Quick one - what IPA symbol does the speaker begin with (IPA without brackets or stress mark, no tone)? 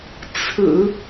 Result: t͡sʰ